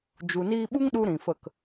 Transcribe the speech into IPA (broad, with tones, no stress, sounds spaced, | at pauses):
d͡ʒ u˨ n iː˧ ɓ u˦ ŋ ɗ u˦ ɾ ĩ˨ f ə˦˨ k